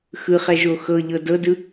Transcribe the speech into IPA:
x ɯ χ ɛ ʒ o x ɤ ʎ ɤ d ɤ d ɯ

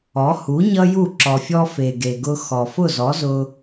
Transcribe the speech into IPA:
ɔ˩˥ h u˩˥ ɲ ʌ˥ j u˥˩ ǁ ɔ˩ fʲ ɔ˧ f e˩ ɡ e˩ ɡ ʊ˧ x ɔ˩ f ʊ˥˩ z ɔ˩˥ z ʊ˧

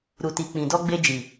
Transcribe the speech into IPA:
ɾ u˨ t i˨ k͡p ĩ˨ d ɔ˧ ɡ͡b e˧ d͡ʒ i˨

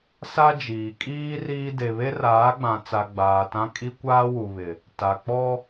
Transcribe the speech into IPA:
s a˦ d͡ʒ iː˨ kʼ iː˦ r iː˦ d e˨ β e˦ r aː˨˦ ɡ͡b ã˨ t͡s a˨ ɡ͡b aː˨ t ã˦ kʼ i˦ kʷ aː˦ w u˨ β ɪ˨ | t a˨ k͡p ɔ˦

